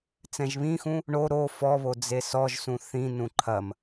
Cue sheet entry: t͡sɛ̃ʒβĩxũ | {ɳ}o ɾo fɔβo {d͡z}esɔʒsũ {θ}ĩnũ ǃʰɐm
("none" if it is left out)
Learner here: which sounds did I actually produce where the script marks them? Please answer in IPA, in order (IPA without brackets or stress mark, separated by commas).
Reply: ɳ, d͡z, θ